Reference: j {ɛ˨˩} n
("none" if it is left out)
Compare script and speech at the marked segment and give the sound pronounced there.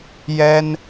ɛ˥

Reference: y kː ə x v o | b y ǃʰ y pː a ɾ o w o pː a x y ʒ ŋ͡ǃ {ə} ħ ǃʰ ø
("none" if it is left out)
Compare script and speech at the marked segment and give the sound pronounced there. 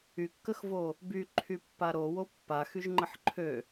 ə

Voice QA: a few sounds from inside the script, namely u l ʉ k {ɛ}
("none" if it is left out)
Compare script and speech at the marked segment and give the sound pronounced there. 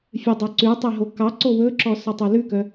œ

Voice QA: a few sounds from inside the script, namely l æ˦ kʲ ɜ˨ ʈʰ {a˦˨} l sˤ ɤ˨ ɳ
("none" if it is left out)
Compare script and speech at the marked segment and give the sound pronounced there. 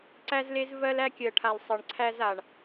a˨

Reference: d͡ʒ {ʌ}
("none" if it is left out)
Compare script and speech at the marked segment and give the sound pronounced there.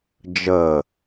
ə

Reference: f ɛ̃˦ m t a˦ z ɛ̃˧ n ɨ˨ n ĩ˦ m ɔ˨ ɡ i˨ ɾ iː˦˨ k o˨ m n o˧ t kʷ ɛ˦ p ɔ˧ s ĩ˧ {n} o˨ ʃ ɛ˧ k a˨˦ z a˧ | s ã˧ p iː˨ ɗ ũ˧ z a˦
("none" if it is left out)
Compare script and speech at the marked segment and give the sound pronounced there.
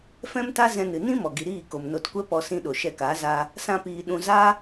ɗ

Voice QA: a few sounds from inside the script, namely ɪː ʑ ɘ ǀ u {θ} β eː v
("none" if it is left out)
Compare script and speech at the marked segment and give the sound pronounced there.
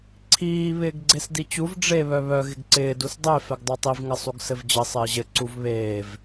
v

